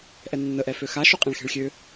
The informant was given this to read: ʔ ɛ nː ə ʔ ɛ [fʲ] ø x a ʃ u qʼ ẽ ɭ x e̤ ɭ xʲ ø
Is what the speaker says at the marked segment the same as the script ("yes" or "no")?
no